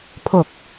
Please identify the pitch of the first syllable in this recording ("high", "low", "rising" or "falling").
low